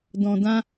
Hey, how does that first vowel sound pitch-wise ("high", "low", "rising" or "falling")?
low